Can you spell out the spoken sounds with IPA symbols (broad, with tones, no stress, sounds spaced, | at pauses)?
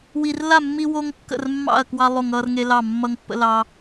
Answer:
w i˦ r l a˥˨ mː i˦ w o˦ ŋ kː ə̰˥˨ r mː ɑ̰˥˨ ɐ̯ k w ɑ˦ lˠ o˥˨ ŋ ʌː˦ r ŋ e˦ l ɑ˥˨ mː ʌ˦ ŋ pː ə̰˦ l ɑ˦